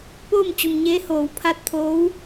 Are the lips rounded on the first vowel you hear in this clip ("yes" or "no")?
yes